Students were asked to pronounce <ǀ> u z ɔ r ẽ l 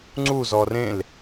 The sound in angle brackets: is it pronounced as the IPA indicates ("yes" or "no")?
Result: no